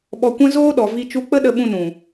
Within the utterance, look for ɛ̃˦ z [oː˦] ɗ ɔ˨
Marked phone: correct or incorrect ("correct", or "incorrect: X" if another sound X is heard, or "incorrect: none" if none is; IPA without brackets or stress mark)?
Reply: correct